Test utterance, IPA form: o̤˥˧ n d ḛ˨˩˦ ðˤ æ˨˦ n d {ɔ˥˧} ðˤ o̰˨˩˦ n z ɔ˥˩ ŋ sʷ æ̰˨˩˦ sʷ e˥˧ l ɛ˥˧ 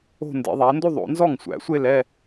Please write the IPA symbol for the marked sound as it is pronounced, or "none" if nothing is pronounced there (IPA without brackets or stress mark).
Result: o˥˧